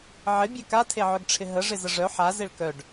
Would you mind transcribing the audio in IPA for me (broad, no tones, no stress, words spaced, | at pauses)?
ʕɪbʲɛ katʰeʕœɡʈ͡ʂʰɪ ɦəʐɪzə ʐœ ħazeɭ kœɖ